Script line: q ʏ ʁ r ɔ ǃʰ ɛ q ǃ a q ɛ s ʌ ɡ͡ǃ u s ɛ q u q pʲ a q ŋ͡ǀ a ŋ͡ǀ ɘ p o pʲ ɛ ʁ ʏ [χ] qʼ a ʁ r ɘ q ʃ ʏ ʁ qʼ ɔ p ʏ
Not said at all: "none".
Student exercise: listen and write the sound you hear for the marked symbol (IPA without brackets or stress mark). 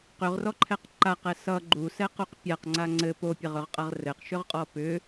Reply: ʁ